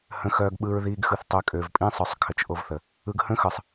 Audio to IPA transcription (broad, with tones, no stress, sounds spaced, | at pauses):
h ə̃˦ x œː˦ ɡ ɓ ɯ˦ ɹ ð iː˦ ɡ x ɯ˨ θ tˤ ø˨ kʼ ø˨ v pʼ ĩ˦ sˤ œ˨ sˤ kʰ ə˨ t͡ʃ ʔ o˦ v θ ə˨ | ɯ˦ ɡ h ə̃˦ x ɯ˨ sˤ